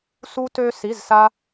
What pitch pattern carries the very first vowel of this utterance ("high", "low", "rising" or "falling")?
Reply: high